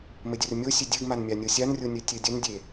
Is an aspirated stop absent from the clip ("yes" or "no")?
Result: yes